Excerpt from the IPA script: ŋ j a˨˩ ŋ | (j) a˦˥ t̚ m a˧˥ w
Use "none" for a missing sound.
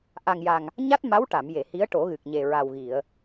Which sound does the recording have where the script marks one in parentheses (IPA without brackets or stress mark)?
ɲ